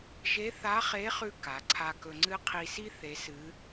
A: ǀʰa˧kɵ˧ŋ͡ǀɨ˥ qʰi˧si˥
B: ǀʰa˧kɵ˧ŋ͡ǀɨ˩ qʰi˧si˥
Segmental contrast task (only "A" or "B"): A